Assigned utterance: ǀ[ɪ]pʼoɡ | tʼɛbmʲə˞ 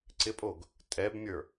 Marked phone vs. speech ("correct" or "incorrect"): correct